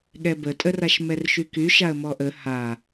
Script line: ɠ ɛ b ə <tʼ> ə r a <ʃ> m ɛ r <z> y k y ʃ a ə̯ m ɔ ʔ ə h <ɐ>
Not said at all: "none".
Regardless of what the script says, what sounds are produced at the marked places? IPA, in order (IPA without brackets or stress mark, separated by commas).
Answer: tʼ, ʃ, ʃ, a